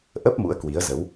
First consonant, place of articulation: glottal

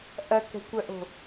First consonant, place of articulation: glottal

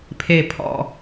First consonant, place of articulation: labial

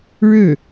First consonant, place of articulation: retroflex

